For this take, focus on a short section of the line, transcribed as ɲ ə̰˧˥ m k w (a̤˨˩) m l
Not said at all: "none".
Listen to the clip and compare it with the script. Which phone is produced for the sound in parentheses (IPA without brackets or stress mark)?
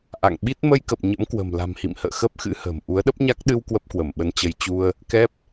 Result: ə̤˨˩